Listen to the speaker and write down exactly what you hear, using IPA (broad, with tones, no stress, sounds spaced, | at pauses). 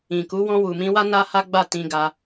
ĩ˨ k u˨˦ w ɔ̃˧ w u˨ m ĩ˧ w a˦ n a˦ h a˦ ɡ͡b a˦˨ t ĩ˧ ɡ a˧